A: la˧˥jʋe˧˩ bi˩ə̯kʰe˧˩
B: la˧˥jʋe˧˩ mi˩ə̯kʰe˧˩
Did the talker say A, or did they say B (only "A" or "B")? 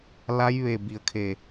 A